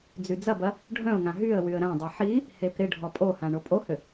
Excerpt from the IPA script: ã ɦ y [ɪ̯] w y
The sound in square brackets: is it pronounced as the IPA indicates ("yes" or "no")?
no